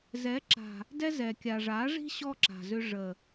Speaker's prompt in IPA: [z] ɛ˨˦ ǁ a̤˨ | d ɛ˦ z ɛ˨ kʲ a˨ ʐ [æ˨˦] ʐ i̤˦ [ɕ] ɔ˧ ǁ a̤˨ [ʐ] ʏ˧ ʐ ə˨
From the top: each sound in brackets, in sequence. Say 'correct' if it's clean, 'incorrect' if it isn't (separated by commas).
correct, incorrect, correct, incorrect